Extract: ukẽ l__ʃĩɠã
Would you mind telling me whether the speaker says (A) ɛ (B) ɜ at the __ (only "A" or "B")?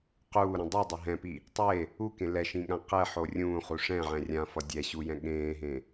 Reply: A